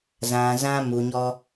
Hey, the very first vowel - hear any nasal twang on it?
yes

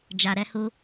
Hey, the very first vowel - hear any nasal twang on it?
no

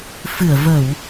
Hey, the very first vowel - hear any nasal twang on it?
no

